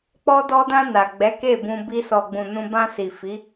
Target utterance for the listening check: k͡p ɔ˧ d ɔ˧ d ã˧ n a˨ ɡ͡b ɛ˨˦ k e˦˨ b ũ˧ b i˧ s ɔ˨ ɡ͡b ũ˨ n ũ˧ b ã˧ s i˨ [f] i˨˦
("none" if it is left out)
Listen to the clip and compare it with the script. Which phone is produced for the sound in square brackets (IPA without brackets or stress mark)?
f